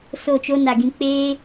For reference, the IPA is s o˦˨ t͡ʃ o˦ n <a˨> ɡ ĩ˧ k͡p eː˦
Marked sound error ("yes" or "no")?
no